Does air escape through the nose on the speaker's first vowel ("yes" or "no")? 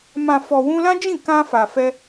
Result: yes